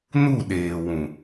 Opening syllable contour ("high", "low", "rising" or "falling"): falling